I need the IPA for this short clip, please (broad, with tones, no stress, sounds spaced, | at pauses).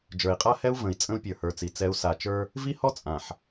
d͡ʒ ə˞˨ i̯ qʼ a˦ h ɛ˦ u̯ v ə̃˨ i̯ t͡sʼ ə̃˦ u̯ pʲ ə˞˨ h ə˞˨ t͡s i˨ t͡s ɛ˨˦ u̯ s a˨ t͡ʃ ə˞˦ | v i˦ h ɔ˦ t͡sʼ ã˨ ħ